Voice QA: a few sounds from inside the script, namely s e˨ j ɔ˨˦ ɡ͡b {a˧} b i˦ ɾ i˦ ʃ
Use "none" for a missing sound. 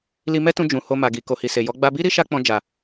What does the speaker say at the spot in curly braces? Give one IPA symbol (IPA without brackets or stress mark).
a˧